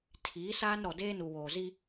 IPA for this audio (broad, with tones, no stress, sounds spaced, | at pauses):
tʰ iː˨˦ s aː˦ n ɾ ɔ˨ d eː˦ n u˨ w oː˨ z i˦